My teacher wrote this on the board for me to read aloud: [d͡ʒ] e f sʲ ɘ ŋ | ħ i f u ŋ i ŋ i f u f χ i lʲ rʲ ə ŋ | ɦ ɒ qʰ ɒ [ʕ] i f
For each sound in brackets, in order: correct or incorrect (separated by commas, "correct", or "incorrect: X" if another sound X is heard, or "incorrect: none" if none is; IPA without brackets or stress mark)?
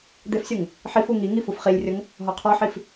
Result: incorrect: d̪, incorrect: ħ